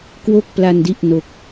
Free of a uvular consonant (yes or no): yes